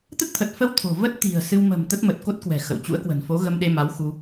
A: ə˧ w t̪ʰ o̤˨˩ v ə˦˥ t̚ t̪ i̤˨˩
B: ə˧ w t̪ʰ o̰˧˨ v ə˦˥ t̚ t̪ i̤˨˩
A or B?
A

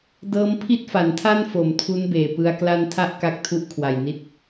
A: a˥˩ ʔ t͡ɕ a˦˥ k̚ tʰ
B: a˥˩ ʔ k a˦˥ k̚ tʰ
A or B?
B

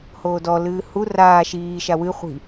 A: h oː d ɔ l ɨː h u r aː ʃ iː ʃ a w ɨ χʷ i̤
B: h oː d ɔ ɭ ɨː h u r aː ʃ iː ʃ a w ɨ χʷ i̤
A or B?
A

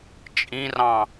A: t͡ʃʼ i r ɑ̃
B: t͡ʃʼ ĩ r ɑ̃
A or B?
B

